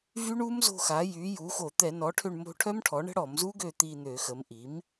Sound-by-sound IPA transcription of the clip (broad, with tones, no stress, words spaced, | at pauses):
vy˦˥ɳu˦˥mzo̤˦˨xa˩˥ jy˩˥ ju˩˥xo˧˩˧ t̪ɛ˧˩˧nɔ˩˥ʈʰø˦˨ɳ mo̤˦˨ʈʰœ˦˥mʈʰɔ˩˥ ɳə̤˦˥ɽɔ˧˩˧mzu˦˥ɡø˦˨ t̪i˦˨n̪ø˧˩˧ xə˩˥m ʔi˩˥m